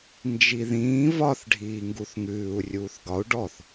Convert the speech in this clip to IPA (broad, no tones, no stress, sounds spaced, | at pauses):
n d͡ʒ i ð ĩː v ɒ θ ɖʱ iː ŋ ɡ u θ ŋ ʉː u̯ rʲ uː θ ɡ ɒ u̯ ɖ ɔ θ